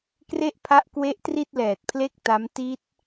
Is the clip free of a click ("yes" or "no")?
yes